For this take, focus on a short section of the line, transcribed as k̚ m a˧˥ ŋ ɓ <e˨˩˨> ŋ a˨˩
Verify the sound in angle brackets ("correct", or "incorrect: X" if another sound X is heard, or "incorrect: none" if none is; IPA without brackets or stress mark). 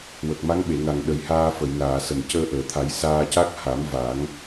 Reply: correct